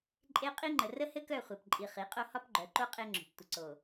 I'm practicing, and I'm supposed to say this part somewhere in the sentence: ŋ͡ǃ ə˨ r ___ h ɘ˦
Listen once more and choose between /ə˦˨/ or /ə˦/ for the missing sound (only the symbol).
ə˦